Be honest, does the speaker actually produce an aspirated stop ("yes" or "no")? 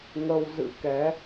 no